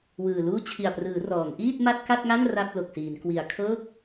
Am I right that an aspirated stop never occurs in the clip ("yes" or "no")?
no